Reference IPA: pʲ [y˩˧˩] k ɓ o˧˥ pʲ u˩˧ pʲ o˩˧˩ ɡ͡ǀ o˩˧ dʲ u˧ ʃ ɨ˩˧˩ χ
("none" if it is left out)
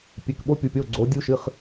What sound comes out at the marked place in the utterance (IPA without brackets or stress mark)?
e˩˧˩